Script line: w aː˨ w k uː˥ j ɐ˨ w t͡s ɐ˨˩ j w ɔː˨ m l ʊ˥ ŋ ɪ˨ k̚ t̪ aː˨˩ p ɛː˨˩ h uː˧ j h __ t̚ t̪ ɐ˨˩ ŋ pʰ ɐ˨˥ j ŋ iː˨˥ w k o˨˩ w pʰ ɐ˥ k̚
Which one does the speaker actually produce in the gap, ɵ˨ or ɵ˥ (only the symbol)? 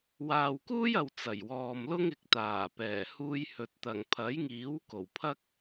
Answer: ɵ˨